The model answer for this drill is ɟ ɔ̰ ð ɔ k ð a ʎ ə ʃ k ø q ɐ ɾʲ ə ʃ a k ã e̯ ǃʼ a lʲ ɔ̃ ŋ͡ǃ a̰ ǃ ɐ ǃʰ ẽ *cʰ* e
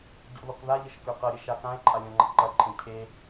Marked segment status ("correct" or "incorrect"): correct